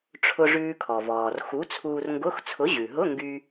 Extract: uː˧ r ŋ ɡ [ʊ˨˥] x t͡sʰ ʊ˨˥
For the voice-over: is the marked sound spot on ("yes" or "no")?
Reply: no